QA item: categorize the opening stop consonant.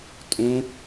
ejective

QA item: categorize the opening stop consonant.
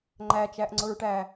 click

